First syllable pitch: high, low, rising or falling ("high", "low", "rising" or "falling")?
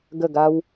falling